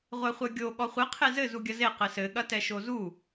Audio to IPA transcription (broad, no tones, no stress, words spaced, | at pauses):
ʁʷɛχʷɛɡʲo ɠɔχʷɘ qʰezɘ zuɡʲɐze qɘsɘ ɠɐtɛʃozu